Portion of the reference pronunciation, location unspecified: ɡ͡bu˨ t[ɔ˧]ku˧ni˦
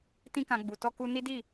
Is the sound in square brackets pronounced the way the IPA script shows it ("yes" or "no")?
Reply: yes